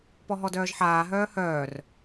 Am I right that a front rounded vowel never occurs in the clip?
no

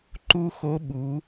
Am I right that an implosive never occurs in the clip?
no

